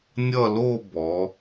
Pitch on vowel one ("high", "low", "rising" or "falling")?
falling